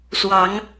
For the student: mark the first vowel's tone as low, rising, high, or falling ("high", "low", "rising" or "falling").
rising